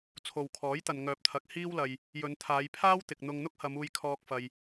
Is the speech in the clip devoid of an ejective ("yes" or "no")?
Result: yes